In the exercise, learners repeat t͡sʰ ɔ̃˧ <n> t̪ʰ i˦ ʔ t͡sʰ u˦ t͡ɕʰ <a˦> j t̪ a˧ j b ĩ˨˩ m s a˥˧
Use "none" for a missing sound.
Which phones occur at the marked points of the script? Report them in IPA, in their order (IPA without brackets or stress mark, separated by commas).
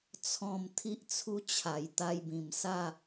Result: m, a˨˩